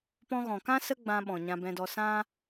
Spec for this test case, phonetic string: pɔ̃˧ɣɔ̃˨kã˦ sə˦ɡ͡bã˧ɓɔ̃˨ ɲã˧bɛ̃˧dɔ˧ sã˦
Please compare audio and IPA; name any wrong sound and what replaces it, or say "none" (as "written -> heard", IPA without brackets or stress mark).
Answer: none